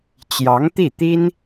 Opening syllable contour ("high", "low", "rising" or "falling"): rising